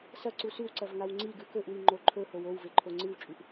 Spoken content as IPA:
s ɐ ǀ u s ʉ w ǀ ɐ v ŋ a w ŋ͡ǀ i ɡ ʉ k ɵ ʔ w i ŋ͡ǃ o ǃʰ ɵ h o w o w v e ǃʰ o ŋ͡ǀ ɨ w t͡ʃʼ ʉ ʔ

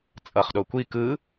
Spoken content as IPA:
t͡sʼ ʌ χ ɗ o kʷ i k ɯ

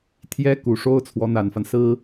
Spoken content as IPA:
t̪ʰ j ɛ˥ k u˧˥ ʂ o˥ ʊ̯ t͡sʰ w ɔ˧˥ n̪ a˨˩ n f a˦ n s ɹ̩˥

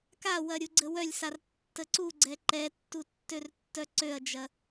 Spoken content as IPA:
k a w ɐ ɾʲ u ɡ͡ǀ ə w œ lʲ s a r tː ə ǀ u ɡ͡ǀ ɛ ǃ ɛ tː u tː ø r tː œ ǀ ø ɐ̯ d͡ʒ ɐ

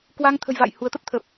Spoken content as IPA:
k w a˧ ŋ t̪ʰ ə̤˨˩ j v a̰ː˧˨ j h u˨˦ ə̯ t̪ ə˦˥ p̚ t̪ʰ ə˨˩ p̚

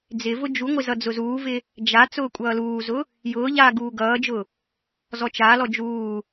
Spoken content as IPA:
d͡z ɪ v ʊ d͡ʒ u ŋʷ ɪ z ʌ d͡z ʊ z uː v ɪ | d͡ʒ a t͡s ʊː kʷʼ ʌː l uː z ʊ | j ʊː ʎ aː ɡ uː ɡ ʌː d͡ʒ ʊ | z ɔ t͡ʃ a l ɔ d͡ʒ uː

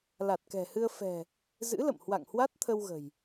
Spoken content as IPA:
l a˨˩ t̚ k ɛ̤˨˩ h ɨ˧ ə̯ f ɛ̤˨˩ | z ɨ̰˧˥ l ə̰˧˨ m h w a̰˧˨ ŋ h w a˦˥ t̚ t̪ʰ ə˧ w ɣ ə̤˨˩ j

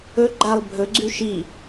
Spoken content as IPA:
ɵ ɡ͡ǃ a lˠ bʱ ɵ ɡ͡ǀ ʉ ʃ i

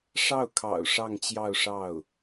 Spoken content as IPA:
ʂ ɑ˥˩ ʊ̯ kʰ ɑ̰˨˩ ʊ̯ ʂ ɑ˥˧ ŋ t͡ɕ j ɑ˥˧ ʊ̯ ʂ ɑ˥˩ ʊ̯

